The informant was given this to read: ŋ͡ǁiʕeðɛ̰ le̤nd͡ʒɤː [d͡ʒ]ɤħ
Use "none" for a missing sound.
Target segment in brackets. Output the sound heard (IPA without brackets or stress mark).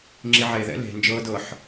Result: d